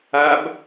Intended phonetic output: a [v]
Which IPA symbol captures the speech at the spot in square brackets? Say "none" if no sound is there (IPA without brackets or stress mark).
b